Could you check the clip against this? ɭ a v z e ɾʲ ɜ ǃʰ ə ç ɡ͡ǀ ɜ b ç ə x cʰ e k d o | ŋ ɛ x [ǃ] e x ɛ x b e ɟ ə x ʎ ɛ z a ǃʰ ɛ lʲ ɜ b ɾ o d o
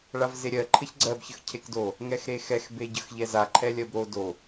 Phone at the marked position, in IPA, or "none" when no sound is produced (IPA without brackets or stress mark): ɾ